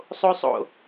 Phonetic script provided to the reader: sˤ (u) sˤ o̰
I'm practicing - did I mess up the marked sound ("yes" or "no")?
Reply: yes